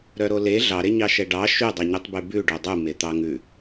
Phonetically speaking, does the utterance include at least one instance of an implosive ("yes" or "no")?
no